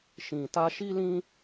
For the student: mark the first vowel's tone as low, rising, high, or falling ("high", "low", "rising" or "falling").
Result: low